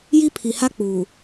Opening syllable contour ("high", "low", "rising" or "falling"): high